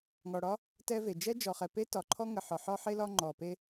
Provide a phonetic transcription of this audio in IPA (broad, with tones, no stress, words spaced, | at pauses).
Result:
ŋɔ˨ɽɒ˦ | tɛ˦ve˨ d͡ʒɛ˦d͡ʒɔ˨χɛ˨pe˦ tɒ˨ǃʰɔ˦ ŋə˨ħɒ˨ ħɒ˦ħe˦ lɒ˦ŋ͡ǃɔ˨pe˦